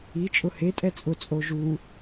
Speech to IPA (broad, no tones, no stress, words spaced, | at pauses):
i t͡ʃʼʊhe tʼɛt͡sʼʊ t͡sʼoʒu